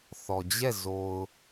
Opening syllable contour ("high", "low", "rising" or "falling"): low